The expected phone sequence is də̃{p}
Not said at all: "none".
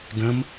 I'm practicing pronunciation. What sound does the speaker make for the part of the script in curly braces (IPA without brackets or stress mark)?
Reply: m